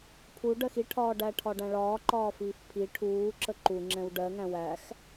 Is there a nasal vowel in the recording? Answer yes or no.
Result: yes